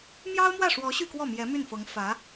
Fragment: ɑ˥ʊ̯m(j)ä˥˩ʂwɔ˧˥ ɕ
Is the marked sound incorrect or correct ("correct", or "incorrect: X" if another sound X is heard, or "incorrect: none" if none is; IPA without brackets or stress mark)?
incorrect: w